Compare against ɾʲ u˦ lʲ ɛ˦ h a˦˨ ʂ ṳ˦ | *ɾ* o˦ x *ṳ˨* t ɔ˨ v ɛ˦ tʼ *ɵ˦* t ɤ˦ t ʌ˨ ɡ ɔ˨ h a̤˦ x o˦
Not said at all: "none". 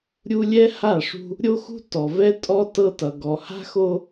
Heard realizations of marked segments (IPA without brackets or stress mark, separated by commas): ɾʲ, ṳ˦, ɔ˦